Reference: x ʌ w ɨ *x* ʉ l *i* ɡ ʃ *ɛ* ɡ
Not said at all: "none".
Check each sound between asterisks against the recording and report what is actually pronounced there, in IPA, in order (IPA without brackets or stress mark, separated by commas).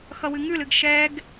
ŋ, ɨ, ɛ